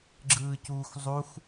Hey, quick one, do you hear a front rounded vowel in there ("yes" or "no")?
no